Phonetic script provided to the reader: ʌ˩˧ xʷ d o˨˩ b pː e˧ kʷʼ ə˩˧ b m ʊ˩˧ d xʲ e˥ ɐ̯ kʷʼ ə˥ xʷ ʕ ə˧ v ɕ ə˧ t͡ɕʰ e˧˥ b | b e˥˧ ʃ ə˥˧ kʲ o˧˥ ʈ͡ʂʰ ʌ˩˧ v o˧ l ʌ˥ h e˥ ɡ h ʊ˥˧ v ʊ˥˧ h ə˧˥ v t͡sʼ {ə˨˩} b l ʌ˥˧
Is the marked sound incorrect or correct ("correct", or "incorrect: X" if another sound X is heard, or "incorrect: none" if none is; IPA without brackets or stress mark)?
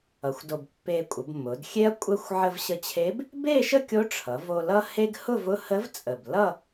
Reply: correct